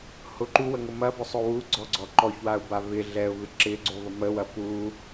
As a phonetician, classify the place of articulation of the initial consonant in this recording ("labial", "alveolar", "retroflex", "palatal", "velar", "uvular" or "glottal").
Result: glottal